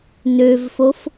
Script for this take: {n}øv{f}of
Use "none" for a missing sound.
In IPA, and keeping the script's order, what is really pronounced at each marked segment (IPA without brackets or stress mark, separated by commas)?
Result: n, f